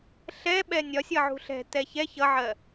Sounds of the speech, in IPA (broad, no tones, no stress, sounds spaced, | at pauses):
ɬ ɛ ɓ ɛ nʲ ɒ sʲ ʌ ʕ ṳ ɬ ɛ̤ t ɛ ç ɛ ç ʌ ʕ ɜ